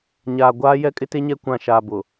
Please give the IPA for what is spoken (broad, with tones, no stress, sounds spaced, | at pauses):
ɲ aː˨ ɡʷ aː˦ j ɛ˦ kʼ ɪ˦ t e˦ ɲ ɛ˦ kʷ ã˨ ʃ aː˨ b ʊ˨